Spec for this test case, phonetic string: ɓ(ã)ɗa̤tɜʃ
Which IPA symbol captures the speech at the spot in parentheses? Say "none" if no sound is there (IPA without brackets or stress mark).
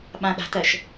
ã